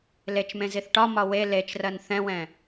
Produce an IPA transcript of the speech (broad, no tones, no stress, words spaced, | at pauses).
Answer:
let͡ʃmẽziθ ʈɒmɒ we let͡ʃrɜn θɛ̃wɛ̃